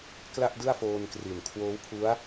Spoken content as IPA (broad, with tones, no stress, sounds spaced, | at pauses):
k l a˥˩ ʔ d ɯ˥˩ a̯ f oː˧ n k r i˨˩ n kʰ w oː˦˥ w pʰ u˦˥ a̯